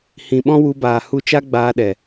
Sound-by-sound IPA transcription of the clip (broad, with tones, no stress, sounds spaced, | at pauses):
h ĩ˨ ɓ ɔ̃˦ w u˧ b aː˨ h u˧ t͡ʃ a˦ ɡ͡b aː˧ ɗ ɛ˨